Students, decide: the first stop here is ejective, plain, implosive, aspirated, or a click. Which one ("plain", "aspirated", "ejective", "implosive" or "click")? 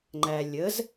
click